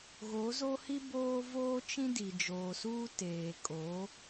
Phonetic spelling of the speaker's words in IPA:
ɣ o˨˦ z o˦ h i˦ b oː˦ v oː˦ t͡ʃ ĩ˦ d i˨ d͡ʒ oː˨ s uː˦ t eː˨ kʼ o˨˦

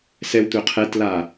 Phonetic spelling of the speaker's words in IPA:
s ɛ w t̪ ɵ qʰ ɛ t l a

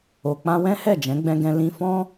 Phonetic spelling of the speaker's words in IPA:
o˨ k͡p ã˧ w ɛ̃˦ h ɛ˦˨ d͡ʒ ɛ̃˨˦ ɡ͡b ɛ̃˧ ɡ ɛ̃˧ l ĩ˧ f ɔ̃˦

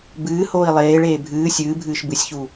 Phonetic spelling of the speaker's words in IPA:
b ɨː h oː i̯ lˠ eː ɭ eː bʱ ɨː sʲ ɨː bʱ ɨː ʃ b ɨ sʲ ç u

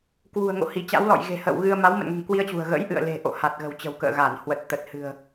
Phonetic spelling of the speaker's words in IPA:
k w ṳ˨˩ ə̯ ŋ o̰˧˨ h i˧˩ t͡ɕ a̰˧˥ w l ɔ̰˧˨ j ɣ e̤˨˩ h ə̰ː˧˨ w ɣ ɨ˧ ə̯ m a˨˦ w m ə̰˧˨ n ŋ ɛ̤˨˩ ŋ k w i˧ ə̯ t͡ɕ ṳ˨˩ ə̯ ɣ ə̰˧˥ j ʔ ɨ̰˧˨ ə̯ l e̤˨˩ ʔ o̰˧˨ h a˨˩ t̚ ɣ ə̤˨˩ w t͡ɕ ə̤˨˩ w k ə̰ː˧˨ ɣ a˧˩ n h w ə˨˩ t̚ t̪ ə˨˩ t̚ h ɨ̤˨˩ ə̯

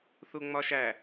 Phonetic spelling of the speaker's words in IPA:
θ u ŋ͡m ɒ ʃ æ

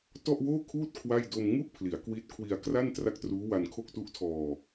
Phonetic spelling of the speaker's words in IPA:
t ɔ˥˩ ʔ w oː˥˩ kʰ uː˥˩ t̚ kʰ w a˥˩ j d o˧ m ŋ u˥˩ ʔ pʰ l i˩˦ a̯ k w i˦˥ t̚ kʰ w i˧ a̯ k r a˥˩ n t r a˥˩ k̚ t r uː˦˥ w a˧ n kʰ o˥˩ k̚ t u˦˥ ʔ tʰ ɔː˧

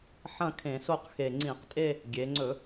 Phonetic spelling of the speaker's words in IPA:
ħ ɐ̃˥˧ kʰ ẽ˧˩˧ s o˥˧ q x e˨˩ ŋ͡ǀ ĩ˧˩˧ q tʼ e˥˧ | ɡʲ e˩˧ ŋ͡ǀ ɵ˧˩˧

